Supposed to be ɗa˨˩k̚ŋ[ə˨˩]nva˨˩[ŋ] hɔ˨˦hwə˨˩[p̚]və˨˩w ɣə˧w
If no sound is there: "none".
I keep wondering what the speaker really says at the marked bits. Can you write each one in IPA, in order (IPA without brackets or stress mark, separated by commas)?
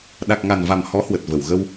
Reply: a˨˩, m, t̚